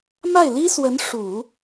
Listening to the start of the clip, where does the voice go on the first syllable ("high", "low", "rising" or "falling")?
falling